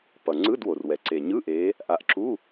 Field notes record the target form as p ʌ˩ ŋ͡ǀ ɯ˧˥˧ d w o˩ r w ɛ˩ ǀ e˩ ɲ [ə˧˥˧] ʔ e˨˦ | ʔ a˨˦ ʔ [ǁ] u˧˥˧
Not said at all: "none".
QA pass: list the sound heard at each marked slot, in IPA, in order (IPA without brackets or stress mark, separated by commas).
ɯ˧˥˧, ǁ